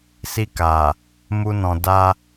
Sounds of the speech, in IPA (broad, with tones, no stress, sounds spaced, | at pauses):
s i˧ k a˨ | m u˧ n ɔ̃˨ d a˧